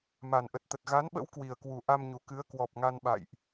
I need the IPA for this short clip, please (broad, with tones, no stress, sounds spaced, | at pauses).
m a˨˩ n ʔ ə˨˩ t̚ t̪ ə˨˩ t̚ ɣ a˨˦ n ɓ ə̰˧˥ w k w i˨˩ ə̯ k w u˨˩ ʔ a˧ m ɲ u˨˩ k ɨ˨˦ ə̯ k w ɔ˨˩ p̚ ŋ a˧ n ɓ a̰˧˨ j ʔ